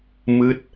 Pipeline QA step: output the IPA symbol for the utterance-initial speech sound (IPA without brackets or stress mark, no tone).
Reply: m